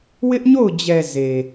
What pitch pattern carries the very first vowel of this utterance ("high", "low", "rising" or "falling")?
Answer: high